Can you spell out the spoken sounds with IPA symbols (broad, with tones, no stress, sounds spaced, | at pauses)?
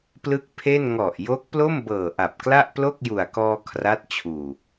p l ɯ˥˩ k̚ pʰ e˥˩ n ŋ ɔ˨˩ ʔ j o˦˥ k̚ p l o˥˩ m b ɤː˨˩ ʔ a˨˩ p̚ k l a˥˩ ʔ p l o˥˩ k̚ j u˨˩ a̯ k ɔː˧ kʰ r a˦˥ t̚ t͡ɕʰ uː˨˩